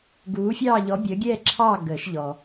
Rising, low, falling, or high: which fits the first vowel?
rising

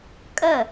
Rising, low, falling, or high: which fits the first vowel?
falling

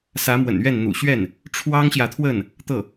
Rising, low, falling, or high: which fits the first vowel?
rising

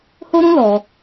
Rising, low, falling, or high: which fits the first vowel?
high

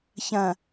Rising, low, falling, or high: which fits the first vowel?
low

